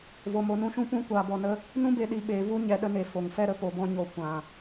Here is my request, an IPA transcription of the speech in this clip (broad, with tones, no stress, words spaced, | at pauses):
vo˧mo˧nũ˦ʃũ˦ pũ˦ kʷaː˧bɔ˧nə˦ | nũ˦be˧ ɗi˧ ɓeː˧vu˦ɲɛ˧ ɗə˧ne˨ fo˨ŋfɛ˦ ɾə˧po˨bɔ̃˧ɲo˨ kʷã˨